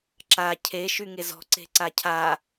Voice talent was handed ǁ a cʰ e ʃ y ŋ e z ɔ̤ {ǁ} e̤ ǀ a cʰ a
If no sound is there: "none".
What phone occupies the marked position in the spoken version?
ǀ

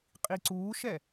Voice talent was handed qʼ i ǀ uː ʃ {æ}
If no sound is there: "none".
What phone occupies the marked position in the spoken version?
ɛ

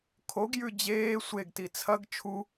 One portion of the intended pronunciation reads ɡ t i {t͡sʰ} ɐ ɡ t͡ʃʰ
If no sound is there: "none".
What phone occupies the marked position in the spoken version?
t͡sʰ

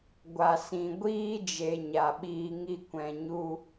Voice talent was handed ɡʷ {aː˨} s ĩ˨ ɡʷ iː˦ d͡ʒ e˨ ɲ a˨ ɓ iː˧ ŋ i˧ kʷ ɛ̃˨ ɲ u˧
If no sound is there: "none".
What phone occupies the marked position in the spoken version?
a˨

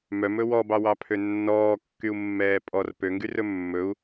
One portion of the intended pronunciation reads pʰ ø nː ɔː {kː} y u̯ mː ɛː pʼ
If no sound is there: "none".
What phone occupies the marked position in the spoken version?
kː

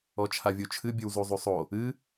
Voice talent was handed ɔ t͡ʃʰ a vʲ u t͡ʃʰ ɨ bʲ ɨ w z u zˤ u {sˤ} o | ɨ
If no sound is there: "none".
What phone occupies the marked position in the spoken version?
sˤ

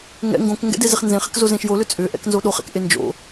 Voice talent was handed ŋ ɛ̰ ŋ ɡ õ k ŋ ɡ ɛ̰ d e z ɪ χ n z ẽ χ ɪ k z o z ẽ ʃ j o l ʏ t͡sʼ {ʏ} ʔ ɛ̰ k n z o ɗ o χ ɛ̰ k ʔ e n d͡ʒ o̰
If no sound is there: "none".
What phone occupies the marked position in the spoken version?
ʏ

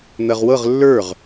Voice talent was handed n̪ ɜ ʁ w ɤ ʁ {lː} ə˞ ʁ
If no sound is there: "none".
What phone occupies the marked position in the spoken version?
lː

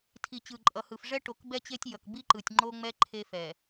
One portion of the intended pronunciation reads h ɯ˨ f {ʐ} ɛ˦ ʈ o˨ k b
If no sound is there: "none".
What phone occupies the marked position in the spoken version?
ʐ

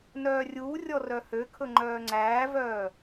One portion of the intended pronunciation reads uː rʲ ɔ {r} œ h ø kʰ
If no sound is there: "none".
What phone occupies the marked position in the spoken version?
r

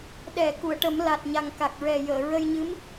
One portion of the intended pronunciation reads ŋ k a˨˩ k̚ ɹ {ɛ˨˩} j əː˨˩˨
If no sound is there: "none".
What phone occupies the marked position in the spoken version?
ɛ˨˩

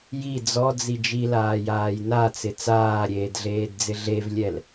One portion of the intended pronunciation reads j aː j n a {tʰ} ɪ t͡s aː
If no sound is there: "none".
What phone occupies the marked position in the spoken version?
t͡s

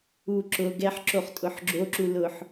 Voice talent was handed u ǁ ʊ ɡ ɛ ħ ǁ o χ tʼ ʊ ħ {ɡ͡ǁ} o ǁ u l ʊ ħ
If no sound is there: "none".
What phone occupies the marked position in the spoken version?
ɡ͡ǁ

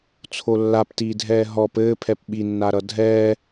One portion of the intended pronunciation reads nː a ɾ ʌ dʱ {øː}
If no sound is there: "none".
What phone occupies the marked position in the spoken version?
ɛː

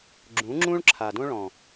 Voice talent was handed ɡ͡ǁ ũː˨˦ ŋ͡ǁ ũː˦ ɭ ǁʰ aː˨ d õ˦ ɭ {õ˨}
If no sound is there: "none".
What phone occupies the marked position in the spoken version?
ɔ̃˨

